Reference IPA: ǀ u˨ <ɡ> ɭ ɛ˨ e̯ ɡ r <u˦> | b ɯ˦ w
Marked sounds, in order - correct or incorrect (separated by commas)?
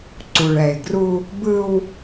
incorrect, correct